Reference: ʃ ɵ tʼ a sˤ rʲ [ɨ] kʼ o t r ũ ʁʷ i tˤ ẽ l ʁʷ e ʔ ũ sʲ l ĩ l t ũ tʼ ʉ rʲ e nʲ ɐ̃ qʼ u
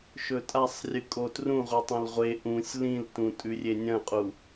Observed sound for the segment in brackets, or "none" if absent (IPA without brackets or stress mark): ɨ